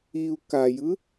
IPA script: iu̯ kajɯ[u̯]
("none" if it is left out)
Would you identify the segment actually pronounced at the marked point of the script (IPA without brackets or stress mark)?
none